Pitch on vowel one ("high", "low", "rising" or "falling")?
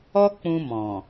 high